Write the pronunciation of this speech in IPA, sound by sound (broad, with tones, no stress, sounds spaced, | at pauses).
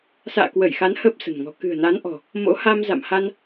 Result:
s a̰ː˧˨ k w ə˧˩ j x a˨˦ n h ə˦˥ p̚ s ə̤˨˩ n ŋ ɔ̤˨˩ k ɨ̤˨˩ ə̯ n a˨˦ n ʔ ɔ̤˨˩ | m o̰˧˥ h a˧ m z a̰˧˨ m h a˧ n